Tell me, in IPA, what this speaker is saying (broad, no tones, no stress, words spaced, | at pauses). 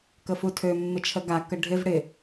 kəfutʰø mːɪt͡ʃʰəɡa kəɖʱɪv ɽɪ